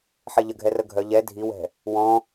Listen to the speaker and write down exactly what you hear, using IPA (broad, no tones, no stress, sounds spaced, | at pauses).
ħ e ʎ ə ɡʱ ɛ r ə ɡʱ œ ʎ ɛ dʱ i w ɛ̤ | w ɔ̃